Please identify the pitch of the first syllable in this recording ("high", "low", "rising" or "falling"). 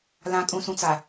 low